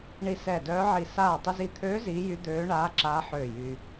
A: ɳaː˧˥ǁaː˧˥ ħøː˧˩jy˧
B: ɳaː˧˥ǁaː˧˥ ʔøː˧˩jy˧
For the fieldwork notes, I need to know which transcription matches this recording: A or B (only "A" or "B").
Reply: A